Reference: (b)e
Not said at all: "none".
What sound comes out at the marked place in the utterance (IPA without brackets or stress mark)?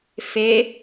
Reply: f